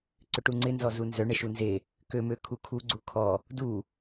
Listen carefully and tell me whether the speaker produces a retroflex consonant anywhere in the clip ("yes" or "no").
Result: yes